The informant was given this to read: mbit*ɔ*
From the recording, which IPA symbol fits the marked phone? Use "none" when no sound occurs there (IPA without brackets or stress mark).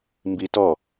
ɔ